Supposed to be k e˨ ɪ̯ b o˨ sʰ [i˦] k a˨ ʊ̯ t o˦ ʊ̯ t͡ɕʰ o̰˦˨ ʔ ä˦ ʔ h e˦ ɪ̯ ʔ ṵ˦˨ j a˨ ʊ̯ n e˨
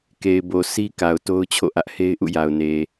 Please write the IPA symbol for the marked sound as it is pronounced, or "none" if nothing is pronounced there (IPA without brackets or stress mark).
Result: i˦